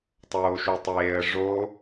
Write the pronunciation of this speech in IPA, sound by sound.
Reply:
tˤ oː ʃ u tˤ eː ə̯ ʐ o

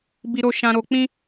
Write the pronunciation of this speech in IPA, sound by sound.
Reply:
b i˧ ɾ o˧ ʃ ã˧ ɾ o˧ k͡p ĩ˦

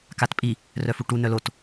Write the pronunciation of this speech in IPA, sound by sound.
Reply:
k a t pʼ i | r œ f u ʈ u n œ l o t

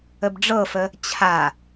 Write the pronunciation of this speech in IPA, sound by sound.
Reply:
ə b ɖ͡ʐ ɤ f ə | t͡ɕʰ a

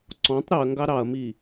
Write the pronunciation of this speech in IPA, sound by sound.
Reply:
ǀ ɔ̃ tˤ ɾ y ɐ̯ ŋ ɡ ɑ ɾ ɑ ɐ̯ m i

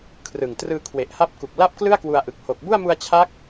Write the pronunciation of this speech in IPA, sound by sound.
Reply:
kʰ r ɯ˨˩ ŋ t r ɯː˧ kʰ w e˨˩ ʔ h a˦˥ p̚ k u˨˩ k̚ l a˥˩ p̚ k l ɯ˥˩ a̯ k w u˧ a̯ ʔ ɯ˨˩ k̚ h o˨˩ k̚ b u˥˩ a̯ m u˧ a̯ t͡ɕʰ a˦˥ k̚

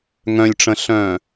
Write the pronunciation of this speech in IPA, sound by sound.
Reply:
ŋ œ̃ lʲ ʈ͡ʂ ə̃ ɬ œ̃ː

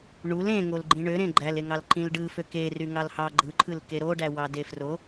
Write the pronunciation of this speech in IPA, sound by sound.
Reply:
ɳ u l ẽ ŋ o l ɡ͡ǃ ĩ ɳ ø ɾ ẽ ɡ͡ǃ æ l e ŋ ɑ l ǃ ĩ l ɖ ɯ f ø k e r y ŋ ɑ l h ɑ ɡ͡ǃ ɯ ǃʰ ɯ l k e ɾ o ɖ æ w ɑ d e f r o

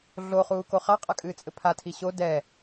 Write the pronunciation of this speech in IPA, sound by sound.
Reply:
ɮ o χ uː k o χ a qʼ a kʼ ɨː t͡sʼ ɘ pʰ a tʰ i ɕ o d ɛ

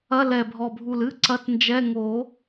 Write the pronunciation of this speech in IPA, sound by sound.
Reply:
ɐ˧˥˧ l ɛ˨˩ bʱ ɔ˨˩ bʱ u˨˩ l ɨ˧˥˧ ǀ ɐ˧˥˧ t n d͡ʒ ɛ˧˥˧ ŋ o˨˩˦

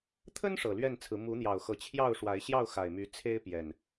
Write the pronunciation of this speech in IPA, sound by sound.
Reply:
t̪ʰ ə˦ n ʂ ɤ˨˩ l ɥ ɛ˥˨ n t͡sʰ ɹ̩˨˦ m u˨˦ n̪ j ɑ˨˩ ʊ̯ x ɤ˨˦ t͡ɕʰ j ɑ˥˨ ʊ̯ ʂ w a˨˦ ɪ̯ ɕ j ɑ˥˨ ʊ̯ x a˨˩ ɪ̯ m y˨˦ t͡sʰ e˦ ɪ̯ p j ɛ˨˩ n

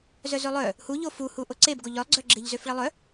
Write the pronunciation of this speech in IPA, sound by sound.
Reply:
z œ z ø lˠ œ | h u ʎ o f u h u ʔ o ǀ e b ɡ o ʎ œ lˠ ɡ͡ǀ œ ɡ͡ǁ e ʎ z ø f ɭ e lˠ œ

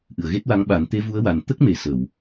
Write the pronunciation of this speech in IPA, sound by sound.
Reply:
ʔ ɨ˨˩˨ ə̯ ɣ e˦˥ t̚ w a˧˥ ŋ ɓ a˨˩˦ n t̪ e˧˥ v u˧˥ ə̯ w a˨˩ n t̪ ə˦˥ k̚ m e˨˩ s ə˨˩˨ w

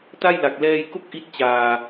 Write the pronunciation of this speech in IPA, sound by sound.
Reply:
t a˥˩ j l a˨˩ k̚ l ɛː˧ j k o˥˩ k̚ ʔ i˥˩ t̚ t͡ɕ aː˧

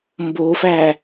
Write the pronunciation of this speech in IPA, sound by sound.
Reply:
m b o f æ

